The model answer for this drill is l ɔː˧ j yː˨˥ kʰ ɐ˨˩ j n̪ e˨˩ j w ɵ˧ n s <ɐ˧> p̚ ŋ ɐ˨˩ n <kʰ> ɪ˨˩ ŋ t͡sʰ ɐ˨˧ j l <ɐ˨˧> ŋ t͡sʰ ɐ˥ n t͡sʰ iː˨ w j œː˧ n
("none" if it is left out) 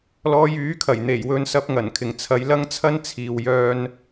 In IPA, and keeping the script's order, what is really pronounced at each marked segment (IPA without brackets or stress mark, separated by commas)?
ɐ˧, kʰ, ɐ˥